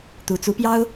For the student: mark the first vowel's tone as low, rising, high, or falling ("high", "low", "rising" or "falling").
rising